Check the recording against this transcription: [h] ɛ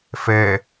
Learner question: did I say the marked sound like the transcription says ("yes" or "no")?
no